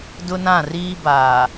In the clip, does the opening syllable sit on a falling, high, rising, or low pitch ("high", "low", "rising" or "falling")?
high